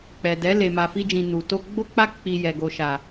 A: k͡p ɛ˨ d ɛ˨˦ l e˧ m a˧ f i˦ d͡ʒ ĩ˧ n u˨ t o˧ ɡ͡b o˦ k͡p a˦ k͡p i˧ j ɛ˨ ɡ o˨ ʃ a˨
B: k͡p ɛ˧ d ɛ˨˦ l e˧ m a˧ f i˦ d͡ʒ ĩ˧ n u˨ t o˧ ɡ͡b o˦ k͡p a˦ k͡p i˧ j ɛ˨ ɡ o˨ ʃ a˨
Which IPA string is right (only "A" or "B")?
A